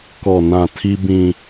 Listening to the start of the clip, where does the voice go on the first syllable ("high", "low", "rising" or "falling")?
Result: low